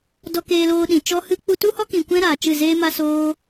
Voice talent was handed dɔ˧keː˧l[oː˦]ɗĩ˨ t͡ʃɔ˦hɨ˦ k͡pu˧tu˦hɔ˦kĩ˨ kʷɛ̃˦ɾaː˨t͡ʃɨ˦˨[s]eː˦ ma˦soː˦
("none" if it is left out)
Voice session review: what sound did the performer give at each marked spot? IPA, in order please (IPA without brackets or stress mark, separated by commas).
oː˧, z